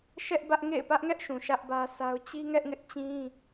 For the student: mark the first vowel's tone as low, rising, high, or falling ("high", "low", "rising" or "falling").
high